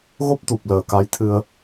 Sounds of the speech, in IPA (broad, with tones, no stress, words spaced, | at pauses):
ɣo˦˥p̚t̪u˨˩p̚ ləː˨˩ka˨˦jt̪ʰɨ˧ə̯